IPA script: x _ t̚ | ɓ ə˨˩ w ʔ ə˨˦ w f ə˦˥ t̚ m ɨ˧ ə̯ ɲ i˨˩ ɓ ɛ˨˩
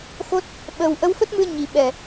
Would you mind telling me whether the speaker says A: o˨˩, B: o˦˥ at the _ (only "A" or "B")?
B